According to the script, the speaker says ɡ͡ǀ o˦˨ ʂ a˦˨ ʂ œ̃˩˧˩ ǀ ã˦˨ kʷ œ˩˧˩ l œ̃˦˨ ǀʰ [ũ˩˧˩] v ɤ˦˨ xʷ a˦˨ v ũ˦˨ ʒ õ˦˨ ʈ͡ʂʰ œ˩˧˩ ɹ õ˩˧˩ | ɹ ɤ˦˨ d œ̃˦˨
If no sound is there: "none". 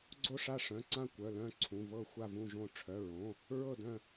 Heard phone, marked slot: ũ˩˧˩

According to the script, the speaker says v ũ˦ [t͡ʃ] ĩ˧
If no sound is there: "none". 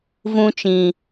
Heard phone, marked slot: t͡ʃ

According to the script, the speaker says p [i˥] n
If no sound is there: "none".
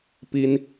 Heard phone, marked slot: i˥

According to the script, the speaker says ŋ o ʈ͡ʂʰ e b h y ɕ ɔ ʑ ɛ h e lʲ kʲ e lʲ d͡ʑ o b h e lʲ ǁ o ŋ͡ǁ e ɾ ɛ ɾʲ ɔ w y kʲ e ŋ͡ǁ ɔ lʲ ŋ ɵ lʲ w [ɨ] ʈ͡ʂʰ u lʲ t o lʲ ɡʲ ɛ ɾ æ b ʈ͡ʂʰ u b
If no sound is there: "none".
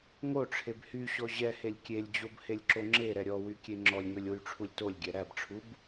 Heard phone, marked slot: y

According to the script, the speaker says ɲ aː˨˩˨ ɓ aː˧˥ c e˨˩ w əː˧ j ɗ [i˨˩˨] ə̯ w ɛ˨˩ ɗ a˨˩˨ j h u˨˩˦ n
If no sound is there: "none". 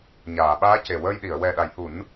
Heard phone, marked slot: i˨˩˨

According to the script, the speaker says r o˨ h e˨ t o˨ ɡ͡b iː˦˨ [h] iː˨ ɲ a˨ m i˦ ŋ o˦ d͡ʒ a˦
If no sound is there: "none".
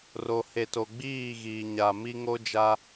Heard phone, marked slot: ɣ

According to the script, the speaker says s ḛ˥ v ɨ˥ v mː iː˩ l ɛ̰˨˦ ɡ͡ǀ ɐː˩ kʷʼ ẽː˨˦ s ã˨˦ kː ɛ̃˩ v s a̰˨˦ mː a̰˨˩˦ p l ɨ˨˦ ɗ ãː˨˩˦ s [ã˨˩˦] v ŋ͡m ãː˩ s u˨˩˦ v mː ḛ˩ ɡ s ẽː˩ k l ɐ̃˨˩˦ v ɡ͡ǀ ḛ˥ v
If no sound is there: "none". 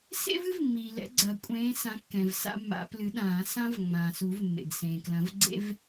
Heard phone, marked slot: ã˥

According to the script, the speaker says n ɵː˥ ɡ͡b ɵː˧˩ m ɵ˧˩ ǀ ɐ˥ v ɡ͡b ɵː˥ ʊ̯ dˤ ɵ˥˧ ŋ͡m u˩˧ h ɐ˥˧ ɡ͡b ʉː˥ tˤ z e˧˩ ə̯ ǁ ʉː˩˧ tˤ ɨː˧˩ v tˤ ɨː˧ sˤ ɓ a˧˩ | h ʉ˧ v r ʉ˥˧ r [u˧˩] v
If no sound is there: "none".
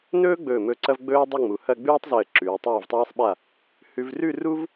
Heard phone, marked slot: u˥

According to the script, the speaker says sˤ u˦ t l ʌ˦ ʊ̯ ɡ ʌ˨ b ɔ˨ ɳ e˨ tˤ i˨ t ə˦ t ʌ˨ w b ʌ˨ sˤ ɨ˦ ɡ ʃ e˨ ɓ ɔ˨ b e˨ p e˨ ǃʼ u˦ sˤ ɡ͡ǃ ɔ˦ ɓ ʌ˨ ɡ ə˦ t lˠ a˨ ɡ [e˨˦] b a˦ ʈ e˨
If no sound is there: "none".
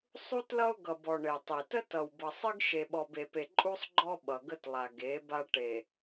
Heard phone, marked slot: e˨˦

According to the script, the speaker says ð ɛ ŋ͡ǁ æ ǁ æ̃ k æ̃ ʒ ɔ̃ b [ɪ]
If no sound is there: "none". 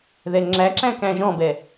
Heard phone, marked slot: ɛ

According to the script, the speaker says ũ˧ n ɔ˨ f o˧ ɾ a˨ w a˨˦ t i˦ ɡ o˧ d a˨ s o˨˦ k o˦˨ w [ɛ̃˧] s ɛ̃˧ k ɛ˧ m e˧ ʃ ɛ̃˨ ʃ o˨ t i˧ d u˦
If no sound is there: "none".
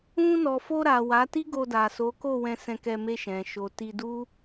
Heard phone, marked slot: ɛ̃˧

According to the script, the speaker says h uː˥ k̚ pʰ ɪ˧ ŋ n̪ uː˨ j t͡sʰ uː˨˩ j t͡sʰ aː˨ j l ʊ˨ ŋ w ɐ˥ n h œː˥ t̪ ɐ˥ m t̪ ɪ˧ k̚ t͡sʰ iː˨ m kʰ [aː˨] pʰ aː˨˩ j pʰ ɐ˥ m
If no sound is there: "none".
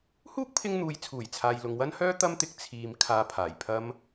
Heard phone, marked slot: aː˨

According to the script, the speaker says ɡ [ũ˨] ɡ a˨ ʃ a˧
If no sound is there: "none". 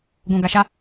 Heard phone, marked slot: ũ˨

